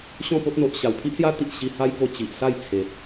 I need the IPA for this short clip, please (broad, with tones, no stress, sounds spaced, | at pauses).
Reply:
ɕ ɔ̃˥˧ p o˦ t̚ n̪ o˨ ʔ ɕ a˨˩ w pʰ i˦ ʔ s j a˦ t̪ i˨ ʔ ɕ i˧ h a˦ j k o˧ t͡ɕ i˨ ʔ s a˥˧ j t͡sʰ e˨ t̚